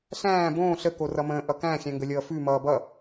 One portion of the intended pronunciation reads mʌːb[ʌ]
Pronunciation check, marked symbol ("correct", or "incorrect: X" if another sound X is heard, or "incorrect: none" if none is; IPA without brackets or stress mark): correct